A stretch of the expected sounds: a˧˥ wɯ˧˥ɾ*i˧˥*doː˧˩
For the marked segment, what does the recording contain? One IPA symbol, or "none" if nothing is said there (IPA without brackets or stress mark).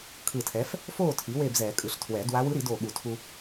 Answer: i˨˩˦